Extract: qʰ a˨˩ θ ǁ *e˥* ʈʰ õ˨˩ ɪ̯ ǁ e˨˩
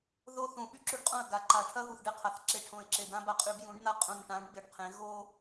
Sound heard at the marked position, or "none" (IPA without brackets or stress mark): e˧